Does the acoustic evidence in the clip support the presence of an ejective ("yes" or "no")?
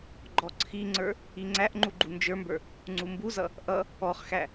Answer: no